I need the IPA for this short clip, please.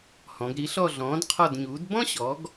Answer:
h ɔ̃˩˧ ɡ ɾ i˨˥ ɬ ɔ˦˨ ɮ ɔ̃ː˨˥ d qʰ ɔ˦˨ d ɲ uː˨˥ d b ɔ̃˥ ɕ ɔ˨˥ ɡ

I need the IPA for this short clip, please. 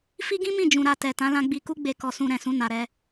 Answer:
f i˦ ɡ ĩ˦ m ĩ˦˨ d͡ʒ ũ˨ ɾ a˧ t ɛ˨ t ã˨˦ l ã˧ ɡ͡b i˧ k u˦ ɡ͡b e˧ k ɔ˧ s ũ˧ ɾ ɛ̃˨ s ũ˧ n a˧ ɾ ɛ˦

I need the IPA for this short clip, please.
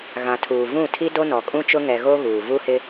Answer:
ɣ ã˨ tʰ uː˨ v ũ˦˨ tʰ i˦ d o˦ n ɔ˨ kʼ ũ˦ t͡ʃ ʊ˦ ŋ ɛ˨ ɣ o˦ ɣ uː˨ v u˦ h ɪ˦

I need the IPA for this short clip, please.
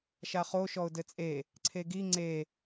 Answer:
ʃ a χ o ʃ ɔ ʊ̯ d ɘ t͡sʼ e | ǀʰ e ɡ i ŋ͡ǀ e

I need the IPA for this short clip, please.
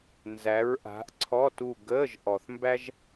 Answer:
n z æ˨˦ ɹ ʔ a̤˨˦ ʔ ǀʰ ɔ˧˥˧ t u˦˨ ɡ əː˧˥˧ ʒ ʔ ɔ˨ θ m b æ˥ ʒ

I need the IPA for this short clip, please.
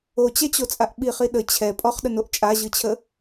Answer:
o t͡ɕ ɛ t͡ɕ o t͡sʼ a ʔ ɓ i χ i ɗ ə t͡ɕʰ ɛ pʼ ɔ χ ɗ ə n o ʔ t͡ʃʼ a ʑ ɯ t͡ɕʰ ə

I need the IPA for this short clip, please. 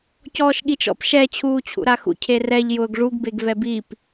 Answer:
c ɔː ʃ ɠ i t͡ʃ ɔ̰ p ʃ ɛ t͡ɕʰ uː t͡ɕʰ ṵ ɾ a x ṵ cʰ e r ɛ ʎ j ʊː ɡ ʐ u ɡ b e ɡ v ɛ b i p

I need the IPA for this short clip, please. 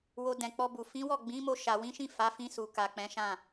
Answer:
w o˧ d ɛ̃˨ k͡p ɔ˧ b u˨ f ĩ˨˦ w ɔ˦˨ ɡ͡b ĩ˨˦ m o˧ ʃ a˨ w ĩ˨˦ ʃ ĩ˦˨ f a˨˦ f ĩ˧ s u˨ k a˨ k͡p ɛ̃˨˦ ʃ ã˦˨

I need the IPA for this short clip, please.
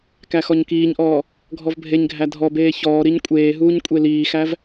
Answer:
k æ x ɔ ɲ k iː ɲ ʔ ɔː | ɡʱ ɔ v bʱ e ɲ ɡʱ æ dʱ ɔ b eː ç ɔː ɾ i ɲ kʷʼ eː ɦ uː ɲ kʷʼ e l iː x æ v

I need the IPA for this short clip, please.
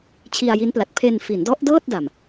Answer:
t͡ɕʰ i˧ a̯ j i˦˥ n p l a˨˩ t̚ pʰ e˧ n f i˩˦ n d ɔ˦˥ ʔ d ɤː˥˩ t̚ d a˨˩ m

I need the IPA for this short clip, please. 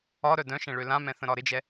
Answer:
ɒ ɾ œ d œ̃ ʃ ɛ̃ ɭ ø l ã m ɛ̃ θ ə̃ ɾ ɒ ɾ ɪ d͡ʒ ɛ

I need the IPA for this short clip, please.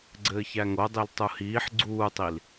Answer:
ɡ͡ǀ ɘː ç æ ŋ o dˤ i l tˤ u h iː ħ ɡ͡ǀ uː tˤ i l

